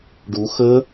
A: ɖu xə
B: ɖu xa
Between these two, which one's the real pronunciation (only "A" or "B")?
A